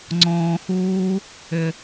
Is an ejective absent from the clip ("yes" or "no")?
yes